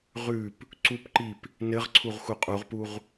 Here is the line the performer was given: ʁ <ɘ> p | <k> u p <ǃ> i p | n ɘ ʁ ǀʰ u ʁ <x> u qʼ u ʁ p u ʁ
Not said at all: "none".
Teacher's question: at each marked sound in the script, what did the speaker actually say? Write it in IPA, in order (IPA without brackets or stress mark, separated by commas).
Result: ʉ, ǀ, ǃ, x